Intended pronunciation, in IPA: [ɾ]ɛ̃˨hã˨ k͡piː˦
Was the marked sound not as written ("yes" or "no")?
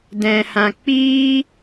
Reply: yes